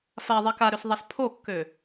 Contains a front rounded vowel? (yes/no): yes